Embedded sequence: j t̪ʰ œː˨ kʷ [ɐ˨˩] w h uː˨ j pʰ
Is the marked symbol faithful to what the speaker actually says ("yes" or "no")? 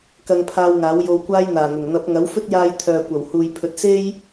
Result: yes